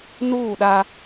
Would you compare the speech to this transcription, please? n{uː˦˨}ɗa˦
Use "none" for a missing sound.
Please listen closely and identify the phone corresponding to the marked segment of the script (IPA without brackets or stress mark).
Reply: uː˦˨